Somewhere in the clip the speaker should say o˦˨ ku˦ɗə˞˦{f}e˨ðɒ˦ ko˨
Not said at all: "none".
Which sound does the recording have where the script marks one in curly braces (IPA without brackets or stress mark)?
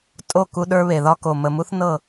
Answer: β